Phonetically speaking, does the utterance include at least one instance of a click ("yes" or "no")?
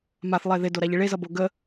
no